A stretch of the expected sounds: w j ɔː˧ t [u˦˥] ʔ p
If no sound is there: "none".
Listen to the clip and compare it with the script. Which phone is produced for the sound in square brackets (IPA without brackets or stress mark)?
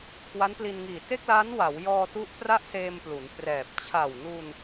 u˦˥